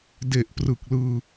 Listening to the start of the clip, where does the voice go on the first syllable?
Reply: low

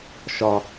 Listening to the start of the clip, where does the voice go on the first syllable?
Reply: high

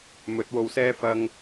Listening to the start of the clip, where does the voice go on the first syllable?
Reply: rising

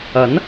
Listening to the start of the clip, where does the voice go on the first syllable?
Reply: rising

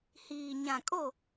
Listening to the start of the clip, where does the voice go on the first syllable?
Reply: low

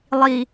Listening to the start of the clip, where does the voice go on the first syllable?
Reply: low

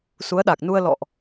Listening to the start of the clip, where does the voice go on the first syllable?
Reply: rising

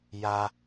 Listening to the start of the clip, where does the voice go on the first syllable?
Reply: high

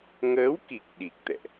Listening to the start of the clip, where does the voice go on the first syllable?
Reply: rising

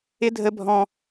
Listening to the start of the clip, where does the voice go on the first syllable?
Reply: high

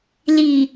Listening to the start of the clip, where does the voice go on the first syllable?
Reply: low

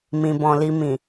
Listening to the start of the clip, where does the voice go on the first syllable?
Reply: low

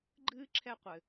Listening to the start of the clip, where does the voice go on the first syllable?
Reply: high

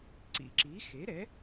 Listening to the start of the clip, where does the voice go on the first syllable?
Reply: low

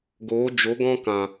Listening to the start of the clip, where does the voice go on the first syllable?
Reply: rising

